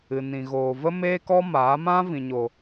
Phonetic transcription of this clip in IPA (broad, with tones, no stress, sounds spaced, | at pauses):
ɨ˨ n ĩ˨ ɣ oː˨ v ə˦ m eː˦ k ɔ˦ m aː˨˦ m ã˦ v ĩ˨ ɲ o˨